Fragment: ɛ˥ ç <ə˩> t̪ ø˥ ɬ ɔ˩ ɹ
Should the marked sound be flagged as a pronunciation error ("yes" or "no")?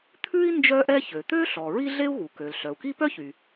yes